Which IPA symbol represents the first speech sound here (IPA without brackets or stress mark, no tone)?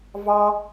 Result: v